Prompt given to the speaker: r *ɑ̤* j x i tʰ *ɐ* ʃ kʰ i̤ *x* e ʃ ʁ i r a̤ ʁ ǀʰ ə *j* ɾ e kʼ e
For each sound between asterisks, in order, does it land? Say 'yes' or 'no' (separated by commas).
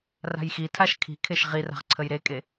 no, no, no, yes